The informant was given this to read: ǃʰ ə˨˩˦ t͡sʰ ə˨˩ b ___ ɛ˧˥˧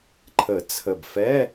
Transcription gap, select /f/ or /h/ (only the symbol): f